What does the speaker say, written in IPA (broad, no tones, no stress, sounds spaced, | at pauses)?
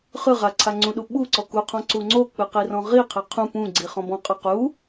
χ ɯ ʁ a ǀʰ a ŋ͡ǀ ũ ɗ u ɓ u ǀ ɔ k u qʰ ɔ̃ ǀ u ŋ͡ǀ o k͡p ɯ q i r ɔ̃ ʁ i qʰ ɛ qʰ ũ p ũ ɡ͡ǀ i χ ɔ̃ b ɔ̃ qʼ ɤ q u